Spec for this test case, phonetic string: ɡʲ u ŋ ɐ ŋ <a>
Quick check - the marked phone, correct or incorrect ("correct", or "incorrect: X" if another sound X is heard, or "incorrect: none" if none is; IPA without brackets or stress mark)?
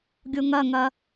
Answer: incorrect: ɐ